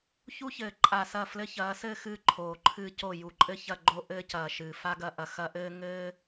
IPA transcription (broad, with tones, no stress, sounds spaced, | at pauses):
ç u˦ ç ɘː˨ ǃʼ a˨ s ɐ˦˨ f l ɘ˦ ç ɐː˨˦ s ɘː˦ x ɨː˦ ǃʰ oː˨ ǃʰ ɨː˦ c o˦˨ j u˨ ǃʼ ɘ˦ ç ɐ˦˨ ɡ͡ǃ o˦ ʔ ɘː˦ c ɐː˨ ʃ ɨː˨ f a˦ ɡ ɐ˦ ʔ ɐ˨ x ɐ˦ ʔ ɘː˦ ŋ ɘː˦